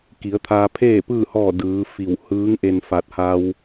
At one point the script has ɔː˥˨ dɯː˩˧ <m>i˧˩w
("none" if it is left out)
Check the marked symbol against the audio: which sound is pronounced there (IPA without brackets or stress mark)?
f